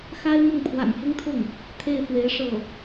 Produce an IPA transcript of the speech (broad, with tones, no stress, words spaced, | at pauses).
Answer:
xa˥ɪ̯mʊ˥˩ŋ pʰwa̰˨˩nfʊ˥ŋt̪ʰʊ˥˩ŋ | t̪ʰe˥˩ɪ̯fwe˧˥ɪ̯ ʂɤ˥˩